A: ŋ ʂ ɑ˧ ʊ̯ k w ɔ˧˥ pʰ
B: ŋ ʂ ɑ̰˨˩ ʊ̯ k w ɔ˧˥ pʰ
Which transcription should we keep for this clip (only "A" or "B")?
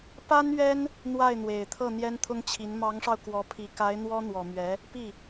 A